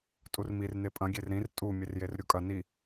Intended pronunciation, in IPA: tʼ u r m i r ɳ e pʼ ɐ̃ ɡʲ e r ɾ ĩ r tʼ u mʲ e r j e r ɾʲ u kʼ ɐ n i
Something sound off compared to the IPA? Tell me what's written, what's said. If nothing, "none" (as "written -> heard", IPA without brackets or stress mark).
ɳ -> n